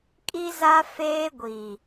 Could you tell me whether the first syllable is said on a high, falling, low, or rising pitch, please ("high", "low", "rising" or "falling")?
high